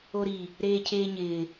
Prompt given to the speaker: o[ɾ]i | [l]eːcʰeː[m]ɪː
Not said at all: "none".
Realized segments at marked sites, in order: ɾ, ɾ, ɲ

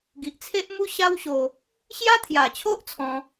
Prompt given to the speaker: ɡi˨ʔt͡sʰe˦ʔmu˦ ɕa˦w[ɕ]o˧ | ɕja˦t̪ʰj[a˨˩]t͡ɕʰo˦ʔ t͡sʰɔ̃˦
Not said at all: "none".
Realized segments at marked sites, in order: ɕ, a˨˩

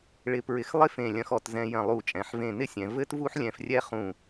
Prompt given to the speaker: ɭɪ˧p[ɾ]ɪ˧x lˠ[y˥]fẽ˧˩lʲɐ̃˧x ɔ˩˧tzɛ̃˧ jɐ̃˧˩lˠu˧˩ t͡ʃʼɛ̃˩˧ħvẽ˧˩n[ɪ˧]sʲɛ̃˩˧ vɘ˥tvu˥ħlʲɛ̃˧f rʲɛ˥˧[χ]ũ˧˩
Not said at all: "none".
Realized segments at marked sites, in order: ɹ, ɪ˥, ɪ˥, χ

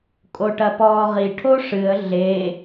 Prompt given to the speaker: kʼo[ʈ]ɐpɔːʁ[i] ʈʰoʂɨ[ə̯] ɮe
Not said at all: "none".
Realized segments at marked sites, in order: ʈ, i, ə̯

